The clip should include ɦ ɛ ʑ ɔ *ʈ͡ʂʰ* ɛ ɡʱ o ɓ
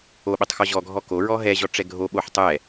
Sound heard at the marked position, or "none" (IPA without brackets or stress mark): ʈ͡ʂ